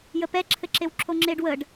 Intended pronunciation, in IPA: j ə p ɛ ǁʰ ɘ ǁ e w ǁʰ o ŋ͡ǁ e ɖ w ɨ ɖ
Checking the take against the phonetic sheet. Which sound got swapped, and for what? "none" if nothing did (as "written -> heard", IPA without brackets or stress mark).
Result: ɨ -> ə